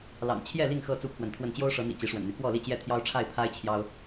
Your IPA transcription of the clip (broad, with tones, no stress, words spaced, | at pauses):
lɑ̰˨˩ŋt͡ɕʰjɛ˥˨li˥˨ŋ xɤ˥˨ t͡su˦pʰwə˨nt̪ʰwə˥˨n t͡ɕjo˦ʊ̯ʂɤ˨˦n̪ḭ˨˩ t͡ɕi˨˦ʂwə̰˨˩nn̪y˦ kwɔ˥˨li˥˨t͡ɕjɛ˥˨ t̪ʰjɑ˦ʊ̯ʈ͡ʂʰa˥˨ɪ̯pʰa˦ɪ̯ t͡ɕʰjɑ˦ʊ̯